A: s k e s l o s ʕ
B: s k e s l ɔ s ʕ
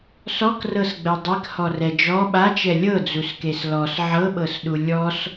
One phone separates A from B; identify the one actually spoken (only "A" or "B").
B